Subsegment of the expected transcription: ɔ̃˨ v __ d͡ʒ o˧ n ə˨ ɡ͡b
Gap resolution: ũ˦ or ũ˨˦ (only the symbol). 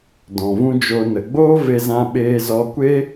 ũ˦